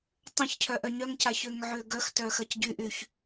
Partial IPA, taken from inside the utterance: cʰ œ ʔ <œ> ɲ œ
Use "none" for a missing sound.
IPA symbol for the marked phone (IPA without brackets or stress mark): œ